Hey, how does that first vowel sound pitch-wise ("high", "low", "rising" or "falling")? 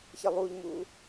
low